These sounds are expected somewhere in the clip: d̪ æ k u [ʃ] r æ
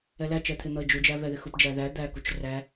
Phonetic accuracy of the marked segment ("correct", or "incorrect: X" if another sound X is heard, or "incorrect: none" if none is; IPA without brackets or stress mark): incorrect: t͡ʃ